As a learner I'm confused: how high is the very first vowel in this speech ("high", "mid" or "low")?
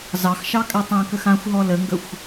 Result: low